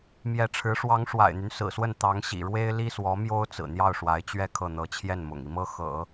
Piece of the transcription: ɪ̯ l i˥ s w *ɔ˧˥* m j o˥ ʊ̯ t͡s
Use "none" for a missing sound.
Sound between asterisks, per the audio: ɔ˧˥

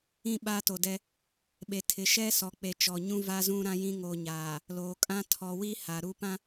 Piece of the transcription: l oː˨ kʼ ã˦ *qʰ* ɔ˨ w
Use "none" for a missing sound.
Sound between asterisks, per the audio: tʰ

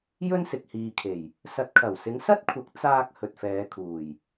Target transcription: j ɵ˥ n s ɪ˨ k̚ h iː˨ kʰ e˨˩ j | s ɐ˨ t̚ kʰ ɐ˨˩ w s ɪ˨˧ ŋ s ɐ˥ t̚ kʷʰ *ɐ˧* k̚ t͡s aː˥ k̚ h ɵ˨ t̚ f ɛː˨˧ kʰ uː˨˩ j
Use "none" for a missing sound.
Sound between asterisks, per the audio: ɐ˨˥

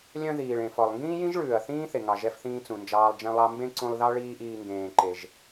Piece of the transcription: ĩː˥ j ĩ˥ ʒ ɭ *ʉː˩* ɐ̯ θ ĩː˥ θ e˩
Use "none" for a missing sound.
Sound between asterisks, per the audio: ʉː˩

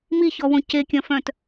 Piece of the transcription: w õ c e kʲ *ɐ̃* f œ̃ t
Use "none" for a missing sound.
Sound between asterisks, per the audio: ɐ̃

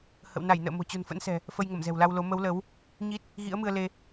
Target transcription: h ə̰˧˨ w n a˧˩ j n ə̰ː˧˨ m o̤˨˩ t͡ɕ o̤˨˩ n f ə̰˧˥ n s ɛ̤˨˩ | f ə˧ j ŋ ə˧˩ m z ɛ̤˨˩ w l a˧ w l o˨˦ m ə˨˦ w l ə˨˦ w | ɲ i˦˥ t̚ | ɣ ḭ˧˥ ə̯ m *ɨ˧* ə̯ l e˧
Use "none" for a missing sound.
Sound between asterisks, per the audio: ɨ˧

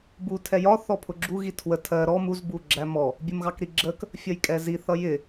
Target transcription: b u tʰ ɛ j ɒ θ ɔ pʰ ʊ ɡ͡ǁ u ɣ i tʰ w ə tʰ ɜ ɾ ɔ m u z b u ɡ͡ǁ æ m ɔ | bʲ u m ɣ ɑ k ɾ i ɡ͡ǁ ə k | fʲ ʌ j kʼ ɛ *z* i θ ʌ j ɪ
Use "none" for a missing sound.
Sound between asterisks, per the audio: z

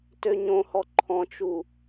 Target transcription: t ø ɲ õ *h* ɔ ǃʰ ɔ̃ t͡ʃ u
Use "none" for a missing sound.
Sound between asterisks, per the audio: h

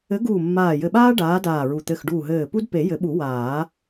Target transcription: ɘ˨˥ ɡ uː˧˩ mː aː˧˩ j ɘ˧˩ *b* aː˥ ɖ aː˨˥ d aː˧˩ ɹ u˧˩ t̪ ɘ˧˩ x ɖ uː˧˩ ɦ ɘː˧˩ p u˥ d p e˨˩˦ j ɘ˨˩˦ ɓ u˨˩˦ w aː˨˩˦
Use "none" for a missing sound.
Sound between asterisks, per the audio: ɓ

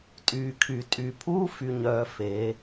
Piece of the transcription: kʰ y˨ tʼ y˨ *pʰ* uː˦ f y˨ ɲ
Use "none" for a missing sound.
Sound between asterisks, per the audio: pʰ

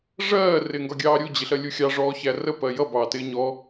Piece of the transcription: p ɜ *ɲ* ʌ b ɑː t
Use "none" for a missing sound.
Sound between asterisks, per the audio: j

